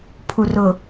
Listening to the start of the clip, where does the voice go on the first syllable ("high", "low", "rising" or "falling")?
low